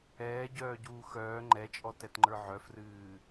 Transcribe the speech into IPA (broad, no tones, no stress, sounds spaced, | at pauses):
ɛː ɟ œː ɟ uː x œː ŋ͡ǃ ɛ t͡ʃʼ ɔ t ɛ t ŋ͡ǃ ə˞ ʕ œ f r ɨː